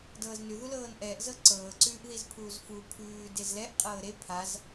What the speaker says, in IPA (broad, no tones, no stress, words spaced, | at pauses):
dɤːznʉ ðulɤːnʔɛːʔ zɤǀɤː ǀʉːʔðizpʰuːzfu pʰʉː dezlɛʔ qʼɤːɾe pʰaz